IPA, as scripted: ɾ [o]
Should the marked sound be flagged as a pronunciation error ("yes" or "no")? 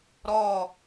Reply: yes